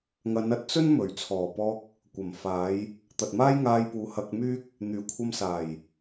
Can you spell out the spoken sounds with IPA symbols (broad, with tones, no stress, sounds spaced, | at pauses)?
ŋ ɐ˨˧ n ɐ˧ t̚ t͡s ɵ˥ n m ɵ˨˩ ɥ t͡sʰ ɔː˨˩ p ɔː˧ k̚ | kʷ ɐ˨˩ m f aː˨˧ j | t̪ ɐ˨ t̚ m aː˥ j ŋ aː˧ j p uː˨˧ h ɐ˧ k̚ m yː˥ k̚ | n̪ yː˨˩ kʷʰ ɐ˧ m s aː˨˩ j